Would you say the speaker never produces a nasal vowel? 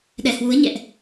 yes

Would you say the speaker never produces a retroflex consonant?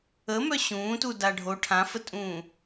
no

